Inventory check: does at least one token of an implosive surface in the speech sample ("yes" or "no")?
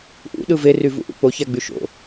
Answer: yes